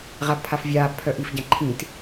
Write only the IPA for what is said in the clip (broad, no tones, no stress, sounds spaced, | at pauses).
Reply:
ʁ a b pʰ a f vʲ aː b pʰ œ ʔ i f ɟ ã ǃʰ ĩ t